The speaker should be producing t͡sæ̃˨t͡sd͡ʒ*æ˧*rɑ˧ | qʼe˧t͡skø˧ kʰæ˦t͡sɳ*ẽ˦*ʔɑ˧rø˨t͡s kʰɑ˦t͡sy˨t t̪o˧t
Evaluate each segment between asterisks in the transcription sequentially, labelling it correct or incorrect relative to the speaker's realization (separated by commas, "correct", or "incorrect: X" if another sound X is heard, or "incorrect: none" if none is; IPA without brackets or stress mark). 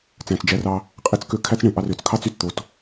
correct, incorrect: ẽ˨